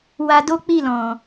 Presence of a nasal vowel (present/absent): present